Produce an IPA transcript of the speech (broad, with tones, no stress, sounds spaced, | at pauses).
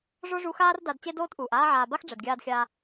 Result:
ʐ o˦ ʐ u˧ x aː˦ r d a˧ d t͡ɕ e˦ d oː˦ t ʔ uː˨ ʔ aː˦ ʕ aː˧ b a˦ x ɖ͡ʐ ɛ˨ d ɡʲ aː˧ d xʲ aː˧